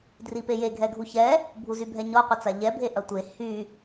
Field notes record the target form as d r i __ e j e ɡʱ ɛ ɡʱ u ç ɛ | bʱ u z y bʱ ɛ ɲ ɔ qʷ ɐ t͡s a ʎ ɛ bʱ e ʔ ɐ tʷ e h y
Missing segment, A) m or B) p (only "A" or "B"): B